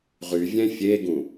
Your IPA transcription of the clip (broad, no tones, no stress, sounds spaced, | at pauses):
ʁ y vʲ ɛ̃ fʲ e ɡ ũ